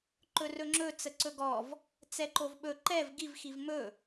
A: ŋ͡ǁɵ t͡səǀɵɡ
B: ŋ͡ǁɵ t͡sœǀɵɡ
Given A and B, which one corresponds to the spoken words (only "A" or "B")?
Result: A